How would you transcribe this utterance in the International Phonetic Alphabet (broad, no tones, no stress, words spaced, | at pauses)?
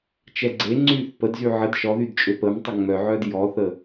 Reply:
t͡ʃɛɡ͡ǀeŋ͡ǀyːθ pədzy ʕəd ʃɔðyd t͡ʃʼøpəːmtˤə ŋ͡mœʕœːd jɔθə